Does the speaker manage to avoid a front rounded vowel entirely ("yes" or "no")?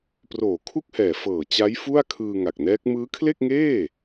yes